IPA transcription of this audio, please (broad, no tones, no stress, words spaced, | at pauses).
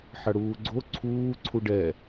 ħɐɽuːɡ͡ǀo ǀʰuː ǀʰuɖɛ